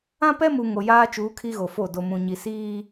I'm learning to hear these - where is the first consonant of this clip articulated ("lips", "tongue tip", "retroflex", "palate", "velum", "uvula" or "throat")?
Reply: lips